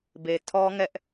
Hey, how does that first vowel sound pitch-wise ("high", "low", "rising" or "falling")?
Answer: low